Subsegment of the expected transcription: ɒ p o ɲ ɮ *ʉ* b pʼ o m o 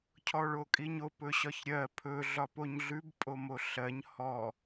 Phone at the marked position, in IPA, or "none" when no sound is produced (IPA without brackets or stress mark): ʉ